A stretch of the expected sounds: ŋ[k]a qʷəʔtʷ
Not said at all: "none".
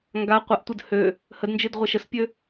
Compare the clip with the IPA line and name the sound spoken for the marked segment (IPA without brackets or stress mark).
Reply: ɡ